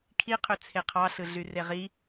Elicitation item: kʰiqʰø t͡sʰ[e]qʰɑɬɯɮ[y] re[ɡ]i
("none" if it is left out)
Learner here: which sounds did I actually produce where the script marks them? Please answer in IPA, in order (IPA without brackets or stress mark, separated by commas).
e, y, ʁ